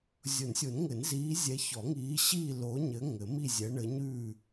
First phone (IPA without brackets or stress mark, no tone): zʲ